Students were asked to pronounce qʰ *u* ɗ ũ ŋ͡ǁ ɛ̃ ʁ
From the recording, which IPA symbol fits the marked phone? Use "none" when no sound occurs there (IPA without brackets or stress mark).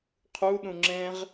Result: u